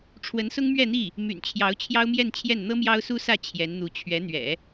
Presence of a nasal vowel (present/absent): absent